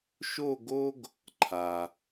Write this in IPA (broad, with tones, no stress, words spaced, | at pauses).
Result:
ʃo˥˧ɡo˥ɡ | ǃʰa˩